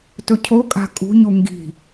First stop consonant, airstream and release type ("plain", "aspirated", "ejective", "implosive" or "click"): plain